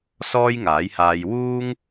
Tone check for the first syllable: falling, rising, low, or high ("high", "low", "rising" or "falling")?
high